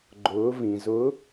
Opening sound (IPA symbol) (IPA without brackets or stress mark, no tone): ɡ͡ǃ